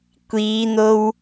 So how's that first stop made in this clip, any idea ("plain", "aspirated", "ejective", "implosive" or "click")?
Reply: plain